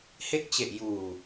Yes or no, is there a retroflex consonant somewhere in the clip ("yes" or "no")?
no